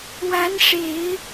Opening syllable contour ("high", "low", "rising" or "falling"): rising